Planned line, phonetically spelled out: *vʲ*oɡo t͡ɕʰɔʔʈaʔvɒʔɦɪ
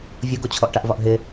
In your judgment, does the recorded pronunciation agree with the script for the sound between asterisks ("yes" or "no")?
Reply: yes